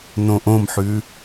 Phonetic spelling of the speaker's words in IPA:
n õ ʔ õ m ħ ʉ

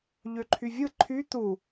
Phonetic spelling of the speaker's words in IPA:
ʎ ø ǃʰ y vʲ ɯ ǃʰ y t̪ u

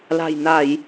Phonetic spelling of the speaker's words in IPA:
l a̤˨˩ j n a˧˩˨ j

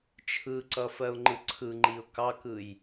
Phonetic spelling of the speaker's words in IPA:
t͡ʃʰ ɯ ǀ ʌ f ɜ ʊ̯ ŋ͡ǃ ɯ ǀʰ ɯ ŋ͡ǃ i ʊ̯ k ɑ k ɯ j

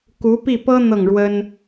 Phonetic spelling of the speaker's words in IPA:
k u˧˥ p i˥˩ p ɤ˥ n̪ ɤ˥˩ ŋ ɻ w ə˥ n

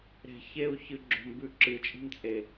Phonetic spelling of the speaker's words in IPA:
ɾ e̤ ç e u̯ ç ɨ ɡ͡ǁ o̤ m b ʉ ǁ ɨ t͡ʃʼ i̤ m t͡sʼ e

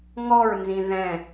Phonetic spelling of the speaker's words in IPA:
ŋ ɔ ɹ n z ĩ ð ɛ̃

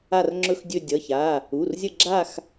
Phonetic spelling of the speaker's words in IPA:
a˦˨ r ŋ͡ǁ ɵ˦˨ x dʲ ɵ˦˨ dʲ ʌ˩˧˩ ç a˩˧˩ | u˩˧˩ r zʲ ə˦˨ ɡ͡ǁ a˦˨ x

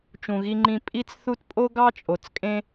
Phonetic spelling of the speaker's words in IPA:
t͡ʃ ũ˩ ɣ i˨ ŋ͡ǃ ĩ˨ pʼ i˦ t͡s θ u˦ t pʼ o˥ ɡ ɑ˥ t͡ʃʼ o˩ t͡s kʼ ẽ˦

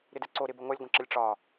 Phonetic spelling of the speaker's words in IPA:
ɾ ɪ d ɛ ǀ o ɾ ɪ b ə ŋʷ ɐ lʲ ɡʷ ə̃ ǁ ə lʲ ʈ͡ʂ ɒ

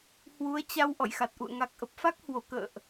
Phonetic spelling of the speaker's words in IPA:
h w u˨˦ ə̯ t͡ɕ a˧ w ʔ ɔ̰˧˨ j x a˨˩ t̚ ʔ ṵ˧˨ ə̯ ŋ a˨˩ k̚ ʔ ə˨˩ p̚ f a˦˥ k̚ h w o˧˩ k ə̰ː˧˨ ʔ

